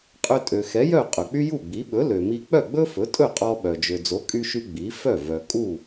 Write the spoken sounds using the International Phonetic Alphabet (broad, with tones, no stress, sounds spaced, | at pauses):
qʼ ø˧ tʼ ø˩ x ɛ˩˥ j œ˥˩ qʼ ɵ˩ k͡p y˥ j u˥˩ ɡ͡b i˩˥ ɓ ɵ˩˥ l ø˩ m i˧ k͡p œ˥˩ ɡ͡b ɵ˥ f ɵ˩˥ tʼ ɵ˥˩ qʼ ɔ˧ ɓ œ˩ d͡ʒ ø˩ d͡z o˩˥ kʼ y˧ ʃ y˧ ɡ͡b i˩˥ f œ˥˩ v œ˩ kʼ u˥˩